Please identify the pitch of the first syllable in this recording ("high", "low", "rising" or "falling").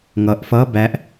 low